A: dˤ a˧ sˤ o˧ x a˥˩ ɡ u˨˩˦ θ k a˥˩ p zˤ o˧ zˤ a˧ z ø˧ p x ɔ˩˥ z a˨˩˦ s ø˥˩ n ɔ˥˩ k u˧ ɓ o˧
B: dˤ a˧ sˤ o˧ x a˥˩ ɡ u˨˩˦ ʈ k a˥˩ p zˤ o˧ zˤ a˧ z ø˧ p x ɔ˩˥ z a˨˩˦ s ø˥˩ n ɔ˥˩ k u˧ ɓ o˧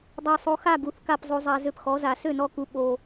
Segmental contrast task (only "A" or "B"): A